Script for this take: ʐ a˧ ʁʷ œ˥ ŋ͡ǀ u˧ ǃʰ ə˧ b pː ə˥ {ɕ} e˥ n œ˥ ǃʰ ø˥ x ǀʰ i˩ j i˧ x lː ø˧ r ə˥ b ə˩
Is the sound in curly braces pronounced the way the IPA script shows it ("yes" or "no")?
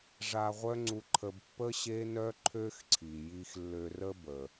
yes